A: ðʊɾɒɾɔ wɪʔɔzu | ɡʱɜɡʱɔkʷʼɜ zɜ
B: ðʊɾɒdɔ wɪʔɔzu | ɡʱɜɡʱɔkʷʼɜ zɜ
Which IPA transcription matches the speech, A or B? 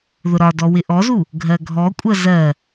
B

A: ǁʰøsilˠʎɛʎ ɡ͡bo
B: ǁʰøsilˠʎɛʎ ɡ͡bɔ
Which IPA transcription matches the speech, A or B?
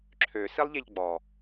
B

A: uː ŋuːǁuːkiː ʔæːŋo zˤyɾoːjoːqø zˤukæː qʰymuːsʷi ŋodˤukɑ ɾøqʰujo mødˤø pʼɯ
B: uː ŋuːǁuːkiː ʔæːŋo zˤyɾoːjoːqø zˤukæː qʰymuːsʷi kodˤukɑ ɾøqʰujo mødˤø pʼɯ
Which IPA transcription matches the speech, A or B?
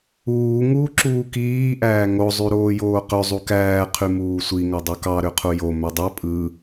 A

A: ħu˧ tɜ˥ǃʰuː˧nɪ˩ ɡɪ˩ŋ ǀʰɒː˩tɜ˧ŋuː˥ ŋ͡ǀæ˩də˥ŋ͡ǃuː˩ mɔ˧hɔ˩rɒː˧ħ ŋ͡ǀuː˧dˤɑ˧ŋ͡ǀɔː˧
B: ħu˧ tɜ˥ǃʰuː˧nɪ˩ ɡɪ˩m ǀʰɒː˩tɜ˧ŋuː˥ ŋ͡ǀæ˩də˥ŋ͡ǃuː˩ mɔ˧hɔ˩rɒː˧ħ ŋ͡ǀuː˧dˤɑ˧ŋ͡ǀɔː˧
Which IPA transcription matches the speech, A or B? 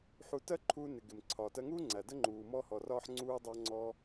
B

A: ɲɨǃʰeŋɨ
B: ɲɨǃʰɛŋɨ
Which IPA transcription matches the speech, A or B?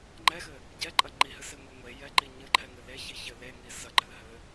B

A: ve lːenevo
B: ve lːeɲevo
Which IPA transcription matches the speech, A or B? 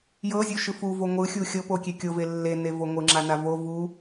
A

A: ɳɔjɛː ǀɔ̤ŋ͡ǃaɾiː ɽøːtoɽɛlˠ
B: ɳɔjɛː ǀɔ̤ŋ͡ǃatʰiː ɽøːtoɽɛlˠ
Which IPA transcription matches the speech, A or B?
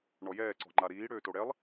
A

